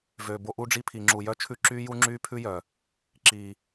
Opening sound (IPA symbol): v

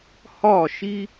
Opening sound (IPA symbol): h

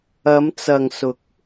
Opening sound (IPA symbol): ɐ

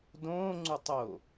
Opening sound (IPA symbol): d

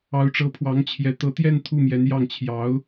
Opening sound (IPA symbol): ɑ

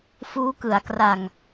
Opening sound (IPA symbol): f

